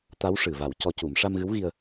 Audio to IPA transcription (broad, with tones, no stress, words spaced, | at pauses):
t̪a˧˥wʂɨ˨˩va˨˩˦w cɔ˧˥cu˨˩˦m ʂa˧mɣɨ˧˥wɣi˧ə̯